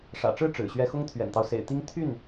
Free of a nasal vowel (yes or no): yes